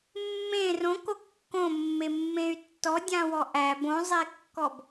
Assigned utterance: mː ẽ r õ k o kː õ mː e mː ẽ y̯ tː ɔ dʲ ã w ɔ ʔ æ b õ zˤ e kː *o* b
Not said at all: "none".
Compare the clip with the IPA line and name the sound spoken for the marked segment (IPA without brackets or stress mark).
ɔ